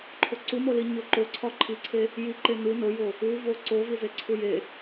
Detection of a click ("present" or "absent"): present